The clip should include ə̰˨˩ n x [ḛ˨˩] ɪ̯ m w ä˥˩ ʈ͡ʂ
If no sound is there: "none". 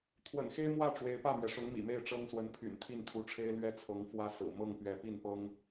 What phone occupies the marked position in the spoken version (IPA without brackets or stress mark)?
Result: e˥